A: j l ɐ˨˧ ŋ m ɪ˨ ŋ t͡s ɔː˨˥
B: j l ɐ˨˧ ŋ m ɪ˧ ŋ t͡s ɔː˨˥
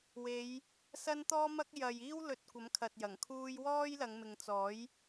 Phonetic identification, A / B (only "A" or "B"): A